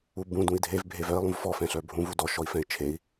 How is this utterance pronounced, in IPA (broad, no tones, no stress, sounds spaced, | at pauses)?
u b ũ d ũ i̯ dʱ e v bʱ e v œ i̯ lˠ ũ v f ɔ f ɛ̃ ɬ œ bʱ ũ v u d ɔ ʃ ɔ i̯ f ɛ̃ i̯ t͡ʃʰ e i̯